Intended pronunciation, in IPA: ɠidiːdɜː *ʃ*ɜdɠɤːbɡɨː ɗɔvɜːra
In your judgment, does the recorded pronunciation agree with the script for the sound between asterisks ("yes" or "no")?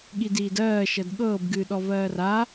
yes